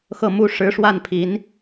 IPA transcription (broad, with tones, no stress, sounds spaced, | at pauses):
x ɤ˥˩ m u˥ ʂ ɻ̩˧˥ ʂ w a˥˩ n pʰ i˧˥ n